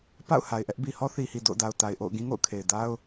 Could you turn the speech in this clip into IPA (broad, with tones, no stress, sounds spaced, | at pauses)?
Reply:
p a̰˦˨ ʊ̯ h a˨ ɪ̯ ʔ ɛ˦ ʔ b i˨ h ɔ˦ θ i˨ h i˨ d o̰˦˨ ʊ̯ d a˨ ʊ̯ t a˨ ɪ̯ ʔ o̰˦˨ ʊ̯ ɡ ĩ˦ ŋ o̰˦˨ ʊ̯ kʰ e˨ ɪ̯ d a˦ ʊ̯